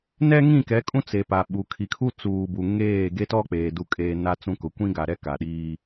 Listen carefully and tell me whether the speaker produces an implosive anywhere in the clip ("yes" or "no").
yes